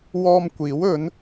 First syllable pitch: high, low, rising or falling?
high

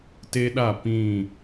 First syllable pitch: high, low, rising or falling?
high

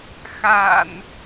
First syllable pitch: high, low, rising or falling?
low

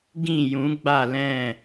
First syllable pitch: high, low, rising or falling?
falling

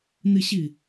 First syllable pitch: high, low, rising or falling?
falling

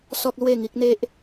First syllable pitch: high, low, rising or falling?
high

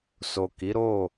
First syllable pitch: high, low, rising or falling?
low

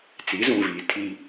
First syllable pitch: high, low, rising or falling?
rising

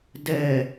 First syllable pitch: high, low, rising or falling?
low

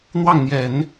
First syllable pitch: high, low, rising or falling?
falling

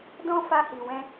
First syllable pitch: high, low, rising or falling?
high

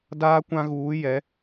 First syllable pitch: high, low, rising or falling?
high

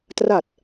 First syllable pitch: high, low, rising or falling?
low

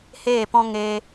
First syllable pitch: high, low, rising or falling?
falling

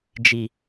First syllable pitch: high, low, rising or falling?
low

